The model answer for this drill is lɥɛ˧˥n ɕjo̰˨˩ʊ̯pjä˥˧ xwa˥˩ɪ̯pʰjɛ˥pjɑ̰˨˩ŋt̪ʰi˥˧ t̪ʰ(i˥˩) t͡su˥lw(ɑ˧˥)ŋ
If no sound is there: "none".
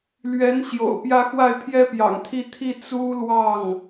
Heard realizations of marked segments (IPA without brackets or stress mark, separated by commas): i˥˩, ɑ˥˩